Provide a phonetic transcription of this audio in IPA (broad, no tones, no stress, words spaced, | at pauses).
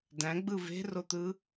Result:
dæ̃ɡ͡bɯ ve̤rot̪ɯ